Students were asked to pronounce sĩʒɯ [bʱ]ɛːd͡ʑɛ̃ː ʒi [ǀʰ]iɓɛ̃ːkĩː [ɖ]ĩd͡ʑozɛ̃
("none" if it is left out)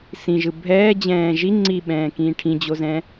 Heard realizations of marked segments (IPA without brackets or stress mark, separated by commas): bʱ, ŋ͡ǀ, ʈʰ